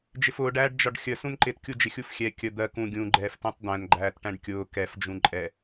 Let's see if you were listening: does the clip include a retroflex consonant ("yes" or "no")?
yes